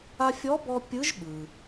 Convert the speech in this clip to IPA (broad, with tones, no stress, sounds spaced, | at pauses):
a˧ fʲ ɔ˧˥ b ɔ˧ pʲ ɯ˧˥ ʒ ɓ ɯ˩